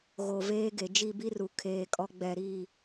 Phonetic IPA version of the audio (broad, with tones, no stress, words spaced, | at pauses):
ɣo˨veː˦ɡe˨ d͡ʒi˦˨bi˦ru˨ kʰeː˦˨kʼɔ˦ ɡ͡bɛ˦˨ɾi˦˨